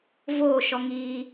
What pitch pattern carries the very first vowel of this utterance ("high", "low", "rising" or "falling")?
falling